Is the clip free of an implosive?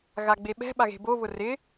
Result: no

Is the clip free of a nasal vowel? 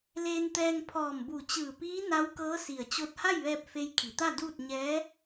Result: yes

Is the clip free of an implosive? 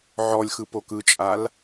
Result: yes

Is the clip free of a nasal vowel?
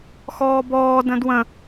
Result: no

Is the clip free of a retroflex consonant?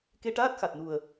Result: no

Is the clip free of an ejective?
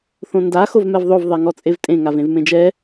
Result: no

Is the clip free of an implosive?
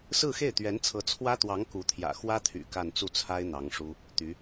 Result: yes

